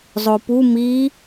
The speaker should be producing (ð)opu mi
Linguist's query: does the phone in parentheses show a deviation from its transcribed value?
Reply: yes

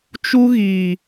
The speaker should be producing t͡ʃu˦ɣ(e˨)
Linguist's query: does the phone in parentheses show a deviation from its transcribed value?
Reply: yes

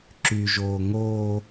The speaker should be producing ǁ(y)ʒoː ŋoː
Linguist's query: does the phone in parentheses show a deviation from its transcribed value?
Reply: no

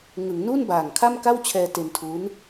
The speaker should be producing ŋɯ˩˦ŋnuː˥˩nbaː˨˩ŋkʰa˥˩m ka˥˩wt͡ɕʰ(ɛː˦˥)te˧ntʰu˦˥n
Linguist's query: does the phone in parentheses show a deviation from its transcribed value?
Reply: yes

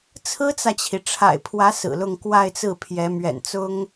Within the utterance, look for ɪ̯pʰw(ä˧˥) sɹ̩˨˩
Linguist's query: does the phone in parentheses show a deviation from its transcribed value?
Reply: no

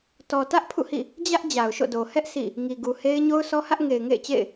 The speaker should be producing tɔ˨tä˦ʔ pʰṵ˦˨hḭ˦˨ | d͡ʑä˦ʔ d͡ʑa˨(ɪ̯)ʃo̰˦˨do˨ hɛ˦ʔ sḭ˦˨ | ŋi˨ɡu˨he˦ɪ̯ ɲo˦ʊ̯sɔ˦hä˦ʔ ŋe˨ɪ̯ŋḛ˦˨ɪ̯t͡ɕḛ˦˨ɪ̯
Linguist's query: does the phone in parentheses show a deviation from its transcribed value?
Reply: yes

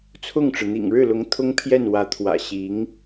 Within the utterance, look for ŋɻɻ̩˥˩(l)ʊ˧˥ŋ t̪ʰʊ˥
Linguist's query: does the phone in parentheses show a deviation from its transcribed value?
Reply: no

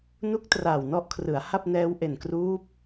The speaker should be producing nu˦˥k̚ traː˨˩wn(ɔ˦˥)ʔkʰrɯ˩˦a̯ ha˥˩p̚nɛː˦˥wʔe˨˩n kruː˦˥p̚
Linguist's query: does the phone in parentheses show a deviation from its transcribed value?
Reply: yes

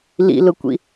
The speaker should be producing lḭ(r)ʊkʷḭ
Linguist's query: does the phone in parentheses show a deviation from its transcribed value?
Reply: yes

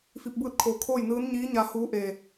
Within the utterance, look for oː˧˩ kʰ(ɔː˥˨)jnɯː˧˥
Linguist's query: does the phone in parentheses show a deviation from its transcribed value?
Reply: yes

